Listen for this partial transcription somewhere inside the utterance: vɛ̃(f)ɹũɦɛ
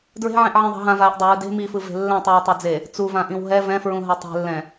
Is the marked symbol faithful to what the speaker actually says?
yes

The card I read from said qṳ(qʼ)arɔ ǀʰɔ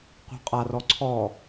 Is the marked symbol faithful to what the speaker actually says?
yes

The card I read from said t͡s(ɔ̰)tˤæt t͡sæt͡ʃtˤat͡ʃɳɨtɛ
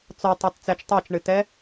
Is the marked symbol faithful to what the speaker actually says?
no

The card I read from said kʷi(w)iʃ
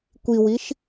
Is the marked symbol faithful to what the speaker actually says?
yes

